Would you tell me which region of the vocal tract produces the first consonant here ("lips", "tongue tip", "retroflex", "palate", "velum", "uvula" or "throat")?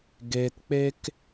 velum